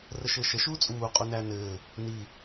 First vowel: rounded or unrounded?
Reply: unrounded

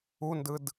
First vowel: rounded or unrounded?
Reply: rounded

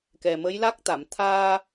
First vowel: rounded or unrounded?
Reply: unrounded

